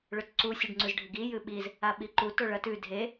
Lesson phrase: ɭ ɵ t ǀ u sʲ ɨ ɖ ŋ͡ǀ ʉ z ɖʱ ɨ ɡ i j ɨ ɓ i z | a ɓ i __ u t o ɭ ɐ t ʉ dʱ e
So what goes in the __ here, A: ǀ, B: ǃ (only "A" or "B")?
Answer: B